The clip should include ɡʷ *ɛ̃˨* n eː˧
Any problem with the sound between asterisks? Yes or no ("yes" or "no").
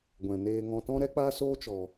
no